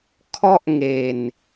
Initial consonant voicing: voiceless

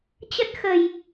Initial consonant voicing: voiceless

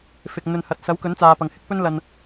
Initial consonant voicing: voiceless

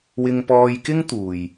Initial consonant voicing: voiced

